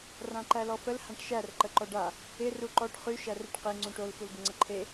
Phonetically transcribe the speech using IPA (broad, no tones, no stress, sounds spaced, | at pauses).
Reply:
r ã ǃ æ l ɔ f ə l h ã ʈ ʃ æ r ǃ ə ǃ ɔ ɖ a | ɪ r u ǃ ɔ ʈ χ y ʃ æ r e ʈ q e ŋ͡ǀ ũ ʈ o l f u l ɡ ɪ ŋ͡ǀ ə ǃʰ e